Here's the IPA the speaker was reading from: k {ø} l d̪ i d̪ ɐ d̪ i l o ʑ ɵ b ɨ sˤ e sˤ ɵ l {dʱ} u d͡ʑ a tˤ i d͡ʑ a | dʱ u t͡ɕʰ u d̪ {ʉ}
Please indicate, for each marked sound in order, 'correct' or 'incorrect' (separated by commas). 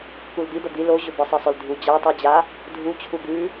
incorrect, correct, correct